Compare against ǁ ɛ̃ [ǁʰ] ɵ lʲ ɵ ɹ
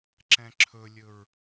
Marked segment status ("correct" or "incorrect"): correct